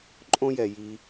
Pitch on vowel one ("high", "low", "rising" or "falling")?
high